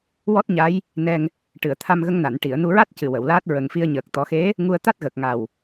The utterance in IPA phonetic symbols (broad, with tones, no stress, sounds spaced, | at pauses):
w ɔ˦˥ t̚ ɲ a˧˥ j | n ɛ˧ ŋ | ʈ ɨ˨˩˨ ə̯ t̪ʰ a˧ m ɣ ə˧ ŋ n a˨˩˨ n ʈ i˨˩˨ ə̯ n u˧ ɹ a˦˥ t̚ c ɨ˨˩ w ə˨˩˨ w l aː˦˥ t̚ ɹ ə˨˩ ŋ f i˧ ə̯ ɲ əː˨˩ k̚ t̪ ɔ˨˩˦ x e˧˥ | ŋ u˧ ə̯ t̪ a˦˥ t̚ ɣ əː˨˩ k̚ ŋ a˨˩ w